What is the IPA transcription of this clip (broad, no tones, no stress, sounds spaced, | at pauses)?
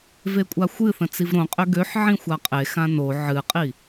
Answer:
v e kʷʼ a xʷ ɨ θ ə̃ t͡s i v ɾ õ qʼ ø ɡ ø ħ ʕ ĩ xʷ a qʼ e x ã n o ʕ ɨ qʼ i